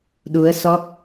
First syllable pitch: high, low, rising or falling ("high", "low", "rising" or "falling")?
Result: rising